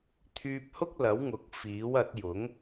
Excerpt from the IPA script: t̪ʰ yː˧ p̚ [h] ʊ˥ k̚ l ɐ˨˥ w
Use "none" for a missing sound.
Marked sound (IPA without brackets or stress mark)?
h